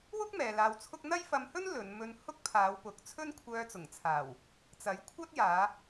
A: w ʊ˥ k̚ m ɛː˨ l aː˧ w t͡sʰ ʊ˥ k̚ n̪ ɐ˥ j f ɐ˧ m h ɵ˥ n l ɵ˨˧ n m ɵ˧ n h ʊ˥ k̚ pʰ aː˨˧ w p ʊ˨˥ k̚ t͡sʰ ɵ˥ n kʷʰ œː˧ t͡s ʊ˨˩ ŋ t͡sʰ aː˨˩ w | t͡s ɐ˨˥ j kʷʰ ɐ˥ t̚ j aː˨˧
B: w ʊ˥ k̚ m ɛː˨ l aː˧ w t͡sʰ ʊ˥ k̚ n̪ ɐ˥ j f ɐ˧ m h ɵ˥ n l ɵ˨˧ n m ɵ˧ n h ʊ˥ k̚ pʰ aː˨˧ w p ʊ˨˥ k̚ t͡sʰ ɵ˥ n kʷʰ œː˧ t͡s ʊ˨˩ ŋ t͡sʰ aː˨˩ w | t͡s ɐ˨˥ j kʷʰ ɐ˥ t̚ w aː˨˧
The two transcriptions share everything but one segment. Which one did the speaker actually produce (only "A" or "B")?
A